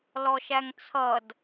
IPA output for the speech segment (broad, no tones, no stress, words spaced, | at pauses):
lɔʃæŋt͡sʰʌd